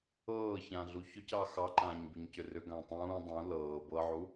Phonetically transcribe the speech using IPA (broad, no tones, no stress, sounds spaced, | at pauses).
ɤː ç ã ɮ u ç ʏ c ɑ x ɑ ǃ ãː ɲ b i ɲ c ʏ r ʏ ɡ ã tˤ ũː dˤ ũ l ɤː b ɤ ʕ u